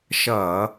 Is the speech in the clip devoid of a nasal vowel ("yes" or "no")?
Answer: yes